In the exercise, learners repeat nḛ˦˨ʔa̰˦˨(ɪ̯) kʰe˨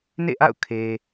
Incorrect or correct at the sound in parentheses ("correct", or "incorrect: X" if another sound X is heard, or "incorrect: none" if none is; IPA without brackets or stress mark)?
incorrect: ʊ̯